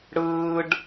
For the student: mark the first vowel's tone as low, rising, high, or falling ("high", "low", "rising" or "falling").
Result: high